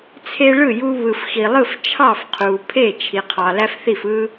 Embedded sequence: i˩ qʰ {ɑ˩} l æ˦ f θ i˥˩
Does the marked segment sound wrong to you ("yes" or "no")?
no